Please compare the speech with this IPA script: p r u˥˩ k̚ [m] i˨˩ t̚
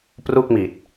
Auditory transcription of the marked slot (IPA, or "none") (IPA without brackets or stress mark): m